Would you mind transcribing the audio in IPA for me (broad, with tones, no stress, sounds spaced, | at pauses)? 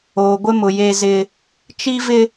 oː˨ ɡʷ ɪ˦ m ʊ˨ j e˦ z ɪ˦ | t͡ʃ i˦ v ɪ˦